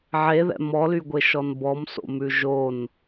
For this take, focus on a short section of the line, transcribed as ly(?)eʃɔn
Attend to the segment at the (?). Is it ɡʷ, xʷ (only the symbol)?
ɡʷ